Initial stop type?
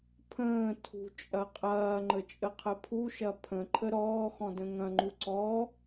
aspirated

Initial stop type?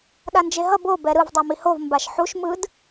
implosive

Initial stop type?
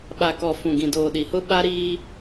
implosive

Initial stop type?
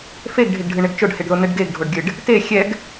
plain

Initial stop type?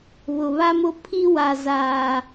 aspirated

